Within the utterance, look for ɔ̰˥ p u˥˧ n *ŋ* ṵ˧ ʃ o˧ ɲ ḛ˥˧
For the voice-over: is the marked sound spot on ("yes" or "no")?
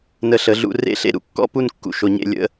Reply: no